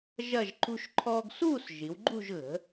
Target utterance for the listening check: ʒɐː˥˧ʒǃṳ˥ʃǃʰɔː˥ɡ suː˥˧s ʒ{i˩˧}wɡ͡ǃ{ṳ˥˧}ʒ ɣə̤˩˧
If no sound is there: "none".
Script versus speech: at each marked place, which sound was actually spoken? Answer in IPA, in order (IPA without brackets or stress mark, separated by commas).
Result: i˩˧, ṳ˥˧